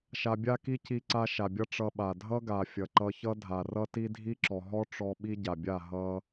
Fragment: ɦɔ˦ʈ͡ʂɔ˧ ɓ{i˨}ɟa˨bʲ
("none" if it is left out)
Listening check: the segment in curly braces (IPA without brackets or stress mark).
i˦